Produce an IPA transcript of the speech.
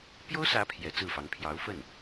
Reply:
pjo˥ʊ̯sä˧˥ pʰjɛ˧˥ t͡sɹ̩˥˩fɑ˧˥ŋ pʰjɑ˧˥ʊ̯fə˥˩n

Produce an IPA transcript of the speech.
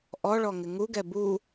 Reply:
ʔɔɭɔŋɪ ŋuɡɛ bu

